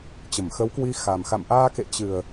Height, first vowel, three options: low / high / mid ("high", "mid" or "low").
mid